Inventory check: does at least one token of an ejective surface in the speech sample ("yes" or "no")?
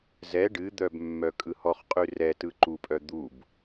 yes